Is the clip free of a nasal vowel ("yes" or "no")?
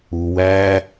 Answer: yes